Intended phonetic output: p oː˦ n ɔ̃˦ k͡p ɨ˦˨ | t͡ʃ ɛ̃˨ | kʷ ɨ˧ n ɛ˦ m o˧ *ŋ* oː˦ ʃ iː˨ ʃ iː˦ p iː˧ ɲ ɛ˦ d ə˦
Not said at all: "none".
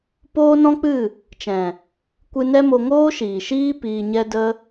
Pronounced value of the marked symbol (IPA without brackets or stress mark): ŋ